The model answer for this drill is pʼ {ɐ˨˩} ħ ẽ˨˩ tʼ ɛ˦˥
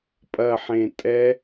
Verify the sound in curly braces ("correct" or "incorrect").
correct